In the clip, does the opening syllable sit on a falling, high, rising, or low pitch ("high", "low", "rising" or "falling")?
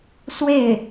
falling